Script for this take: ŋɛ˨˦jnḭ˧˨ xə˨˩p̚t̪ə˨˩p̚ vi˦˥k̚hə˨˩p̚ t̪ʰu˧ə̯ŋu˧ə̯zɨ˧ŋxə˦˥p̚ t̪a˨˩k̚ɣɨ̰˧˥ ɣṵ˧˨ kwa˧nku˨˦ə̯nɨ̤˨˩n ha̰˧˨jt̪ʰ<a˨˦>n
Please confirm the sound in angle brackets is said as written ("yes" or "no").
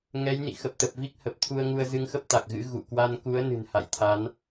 yes